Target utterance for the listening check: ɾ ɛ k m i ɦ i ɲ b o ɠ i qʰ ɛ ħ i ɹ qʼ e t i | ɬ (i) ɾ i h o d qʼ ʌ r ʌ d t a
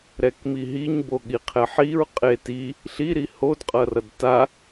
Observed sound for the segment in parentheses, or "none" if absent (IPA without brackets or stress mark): i